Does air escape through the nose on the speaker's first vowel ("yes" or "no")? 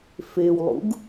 no